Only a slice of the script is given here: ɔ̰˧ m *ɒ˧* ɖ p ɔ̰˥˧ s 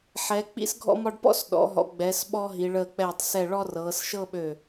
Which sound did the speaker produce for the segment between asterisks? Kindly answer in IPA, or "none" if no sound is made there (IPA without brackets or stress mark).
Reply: ɒ˧